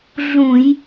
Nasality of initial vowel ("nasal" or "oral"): nasal